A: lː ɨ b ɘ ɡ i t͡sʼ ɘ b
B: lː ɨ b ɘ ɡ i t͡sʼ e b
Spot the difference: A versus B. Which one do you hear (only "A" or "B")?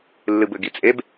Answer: B